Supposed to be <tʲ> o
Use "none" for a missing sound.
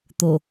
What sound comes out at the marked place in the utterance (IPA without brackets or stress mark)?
t̪